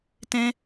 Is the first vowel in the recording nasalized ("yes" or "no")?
yes